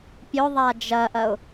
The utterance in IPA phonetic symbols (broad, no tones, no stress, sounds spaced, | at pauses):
pʲ ɵ ðˤ a d͡ʒ ɐ ʔ ɐ ʊ̯